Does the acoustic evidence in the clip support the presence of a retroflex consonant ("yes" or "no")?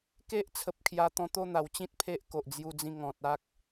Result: no